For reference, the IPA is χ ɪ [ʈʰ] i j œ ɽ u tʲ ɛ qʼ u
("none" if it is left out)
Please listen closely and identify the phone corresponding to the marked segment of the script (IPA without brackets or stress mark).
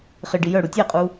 ɖ